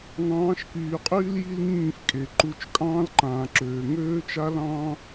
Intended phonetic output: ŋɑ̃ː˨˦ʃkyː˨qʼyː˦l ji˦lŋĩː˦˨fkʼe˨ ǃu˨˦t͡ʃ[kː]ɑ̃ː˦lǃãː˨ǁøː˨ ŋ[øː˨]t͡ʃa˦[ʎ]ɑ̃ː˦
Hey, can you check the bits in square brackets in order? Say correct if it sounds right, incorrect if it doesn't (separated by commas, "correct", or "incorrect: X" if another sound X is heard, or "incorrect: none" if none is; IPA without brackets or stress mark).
incorrect: kʼ, incorrect: øː˦, incorrect: l